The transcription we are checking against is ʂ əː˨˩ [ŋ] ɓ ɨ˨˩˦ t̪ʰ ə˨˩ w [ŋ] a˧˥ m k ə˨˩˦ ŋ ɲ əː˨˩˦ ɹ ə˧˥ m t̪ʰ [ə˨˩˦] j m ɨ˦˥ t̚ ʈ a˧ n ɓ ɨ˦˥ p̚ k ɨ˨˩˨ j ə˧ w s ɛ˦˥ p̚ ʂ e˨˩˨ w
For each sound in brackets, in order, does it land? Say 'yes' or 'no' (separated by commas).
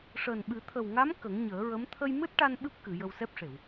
no, yes, no